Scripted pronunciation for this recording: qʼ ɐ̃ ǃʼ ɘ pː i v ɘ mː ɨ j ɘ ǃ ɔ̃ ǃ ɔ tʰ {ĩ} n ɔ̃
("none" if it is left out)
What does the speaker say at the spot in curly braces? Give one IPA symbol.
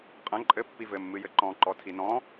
i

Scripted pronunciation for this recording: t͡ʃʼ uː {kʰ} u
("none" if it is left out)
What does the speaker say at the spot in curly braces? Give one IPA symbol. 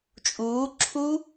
ǁʰ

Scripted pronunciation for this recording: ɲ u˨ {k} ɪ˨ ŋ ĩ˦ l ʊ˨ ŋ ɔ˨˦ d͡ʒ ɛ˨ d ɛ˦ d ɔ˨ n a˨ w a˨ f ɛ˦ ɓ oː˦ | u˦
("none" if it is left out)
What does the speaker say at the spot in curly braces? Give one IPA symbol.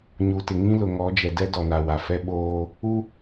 t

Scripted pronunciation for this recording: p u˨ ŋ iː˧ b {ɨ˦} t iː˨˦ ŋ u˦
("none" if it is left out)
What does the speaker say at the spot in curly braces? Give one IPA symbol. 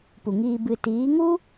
ɨ˨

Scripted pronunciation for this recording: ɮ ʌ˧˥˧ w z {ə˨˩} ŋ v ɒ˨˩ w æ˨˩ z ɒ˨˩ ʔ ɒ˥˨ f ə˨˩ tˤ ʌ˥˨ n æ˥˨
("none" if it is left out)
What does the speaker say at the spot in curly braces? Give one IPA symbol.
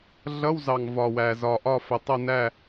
ɑ˨˩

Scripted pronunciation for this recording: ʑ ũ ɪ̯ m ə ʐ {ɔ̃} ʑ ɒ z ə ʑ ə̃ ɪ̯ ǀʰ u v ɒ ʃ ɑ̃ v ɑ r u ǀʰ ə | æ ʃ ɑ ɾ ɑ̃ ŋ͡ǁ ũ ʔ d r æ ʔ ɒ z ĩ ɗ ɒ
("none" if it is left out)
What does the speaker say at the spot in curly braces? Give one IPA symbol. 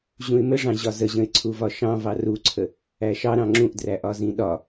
ɑ̃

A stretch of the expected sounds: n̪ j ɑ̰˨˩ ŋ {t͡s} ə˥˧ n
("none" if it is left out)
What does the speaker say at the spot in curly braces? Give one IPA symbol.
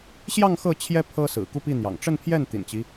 ʈ͡ʂ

